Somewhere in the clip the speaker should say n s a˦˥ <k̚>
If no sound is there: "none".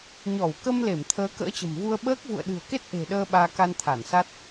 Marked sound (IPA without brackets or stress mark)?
t̚